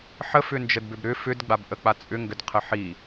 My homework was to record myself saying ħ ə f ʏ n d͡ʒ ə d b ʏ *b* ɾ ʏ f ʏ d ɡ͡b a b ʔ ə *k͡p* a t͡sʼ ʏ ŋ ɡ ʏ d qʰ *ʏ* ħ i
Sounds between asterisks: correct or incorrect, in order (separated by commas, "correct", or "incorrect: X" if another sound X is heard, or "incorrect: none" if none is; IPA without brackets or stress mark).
correct, correct, incorrect: ə